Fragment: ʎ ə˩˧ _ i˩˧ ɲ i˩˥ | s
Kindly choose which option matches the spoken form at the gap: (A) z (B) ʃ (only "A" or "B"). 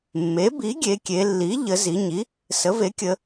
A